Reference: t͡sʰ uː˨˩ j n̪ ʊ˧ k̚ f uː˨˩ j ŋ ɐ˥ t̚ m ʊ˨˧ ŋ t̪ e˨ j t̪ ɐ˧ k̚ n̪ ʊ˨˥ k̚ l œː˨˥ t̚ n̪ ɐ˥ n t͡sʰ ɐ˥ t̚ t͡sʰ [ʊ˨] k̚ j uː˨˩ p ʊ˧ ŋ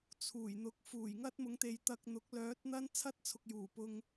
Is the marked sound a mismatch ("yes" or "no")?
no